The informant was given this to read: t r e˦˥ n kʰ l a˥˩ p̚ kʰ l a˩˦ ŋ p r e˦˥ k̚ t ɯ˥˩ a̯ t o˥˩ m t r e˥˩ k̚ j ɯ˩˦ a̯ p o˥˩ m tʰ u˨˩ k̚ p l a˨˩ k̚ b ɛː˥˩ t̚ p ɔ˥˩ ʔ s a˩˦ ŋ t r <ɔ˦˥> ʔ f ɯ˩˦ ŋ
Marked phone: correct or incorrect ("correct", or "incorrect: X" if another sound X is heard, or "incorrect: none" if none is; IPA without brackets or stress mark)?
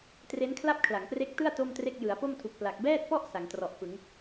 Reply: incorrect: ɔ˨˩